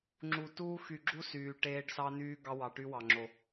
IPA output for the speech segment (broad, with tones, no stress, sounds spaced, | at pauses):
ŋ͡ǁ u˨ t uː˦ x y˨ ɡ͡ǁ u˦ s yː˨ ʈ eː˦ ɖ s ɑ˦ n yː˦ ɡ ɑ˦ w ɑ˨ ʈ y˦ w ɑ˨ ŋ͡ǁ o˨